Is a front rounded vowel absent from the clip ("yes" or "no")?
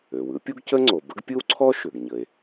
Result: no